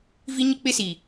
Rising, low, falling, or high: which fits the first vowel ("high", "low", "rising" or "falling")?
high